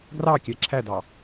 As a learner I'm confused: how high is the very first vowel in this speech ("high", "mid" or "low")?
low